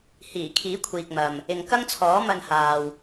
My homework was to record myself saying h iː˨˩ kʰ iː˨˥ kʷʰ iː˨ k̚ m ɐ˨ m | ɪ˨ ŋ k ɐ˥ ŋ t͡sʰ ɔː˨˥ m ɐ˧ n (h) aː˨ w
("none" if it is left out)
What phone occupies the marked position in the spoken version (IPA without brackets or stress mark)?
h